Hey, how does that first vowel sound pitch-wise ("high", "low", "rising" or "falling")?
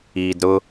low